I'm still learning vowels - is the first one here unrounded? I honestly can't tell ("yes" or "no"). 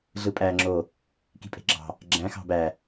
yes